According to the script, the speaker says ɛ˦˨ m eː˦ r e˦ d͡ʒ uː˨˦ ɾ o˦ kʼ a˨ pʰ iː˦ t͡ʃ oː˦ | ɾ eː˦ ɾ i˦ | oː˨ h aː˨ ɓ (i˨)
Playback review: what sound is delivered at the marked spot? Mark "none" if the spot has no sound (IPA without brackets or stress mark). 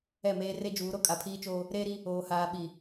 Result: i˨